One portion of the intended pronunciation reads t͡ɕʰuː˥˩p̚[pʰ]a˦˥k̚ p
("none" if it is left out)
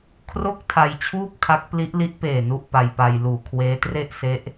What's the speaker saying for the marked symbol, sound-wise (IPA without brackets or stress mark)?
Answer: kʰ